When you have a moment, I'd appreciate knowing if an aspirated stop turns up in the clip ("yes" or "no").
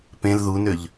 no